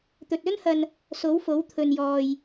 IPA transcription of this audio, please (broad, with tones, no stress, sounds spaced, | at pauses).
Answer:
t̪ ɵ˨ t̚ ɵ˥ n h ɐ˧ n | s o˨˥ w f o˨˥ w t̪ʰ ɵ˨ n j ɔː˨ j